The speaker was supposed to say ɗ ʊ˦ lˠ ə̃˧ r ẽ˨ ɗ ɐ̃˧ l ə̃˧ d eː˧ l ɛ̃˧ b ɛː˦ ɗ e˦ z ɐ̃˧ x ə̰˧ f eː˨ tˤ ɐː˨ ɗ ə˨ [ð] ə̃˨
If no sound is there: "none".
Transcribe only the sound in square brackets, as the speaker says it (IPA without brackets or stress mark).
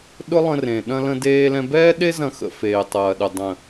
dˤ